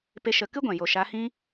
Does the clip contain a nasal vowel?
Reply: yes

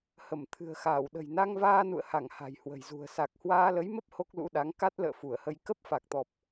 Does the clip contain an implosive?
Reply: yes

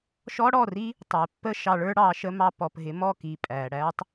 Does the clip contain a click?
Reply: no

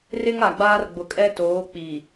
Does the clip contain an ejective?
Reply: yes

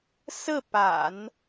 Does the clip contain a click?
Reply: no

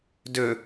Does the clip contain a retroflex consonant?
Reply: no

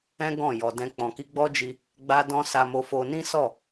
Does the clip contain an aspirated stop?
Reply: no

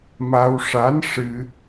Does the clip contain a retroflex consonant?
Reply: yes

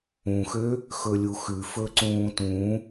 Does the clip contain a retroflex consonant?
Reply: no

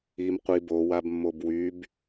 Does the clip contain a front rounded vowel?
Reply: yes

